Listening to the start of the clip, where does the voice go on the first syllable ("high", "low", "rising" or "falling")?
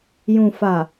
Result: low